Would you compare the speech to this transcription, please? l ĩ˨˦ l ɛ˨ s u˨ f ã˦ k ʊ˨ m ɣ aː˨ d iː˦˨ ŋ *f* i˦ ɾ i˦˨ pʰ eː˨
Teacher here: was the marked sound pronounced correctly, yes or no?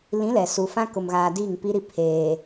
no